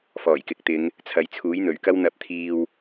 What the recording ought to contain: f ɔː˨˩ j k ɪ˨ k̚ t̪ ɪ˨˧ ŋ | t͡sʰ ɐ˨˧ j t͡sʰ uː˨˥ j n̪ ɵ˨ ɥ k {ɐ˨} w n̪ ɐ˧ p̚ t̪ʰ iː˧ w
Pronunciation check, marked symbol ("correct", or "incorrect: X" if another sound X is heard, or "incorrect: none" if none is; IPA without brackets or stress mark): incorrect: ɐ˥